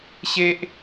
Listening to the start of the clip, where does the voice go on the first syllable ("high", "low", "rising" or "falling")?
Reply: high